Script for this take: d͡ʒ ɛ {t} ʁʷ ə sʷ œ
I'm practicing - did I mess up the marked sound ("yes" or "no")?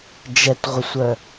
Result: no